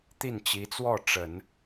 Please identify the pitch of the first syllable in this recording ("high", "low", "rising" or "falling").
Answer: falling